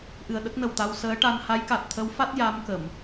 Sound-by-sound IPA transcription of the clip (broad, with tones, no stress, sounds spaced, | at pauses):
ʔ ɨ˨˩ ə̯ ɗ ə˦˥ k̚ n ə˨˩ w t̪ a˧ w s əː˧˥ ʈ a˧ n h a˧˥ j k a˨˩ t̚ t̪ʰ ə˧˥ w f a˦˥ t̚ j a˧˥ m k ə˨˩˨ m